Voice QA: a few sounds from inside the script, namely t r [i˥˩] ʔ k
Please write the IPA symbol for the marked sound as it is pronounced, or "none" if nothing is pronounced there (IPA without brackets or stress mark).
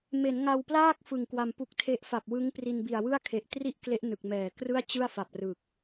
i˥˩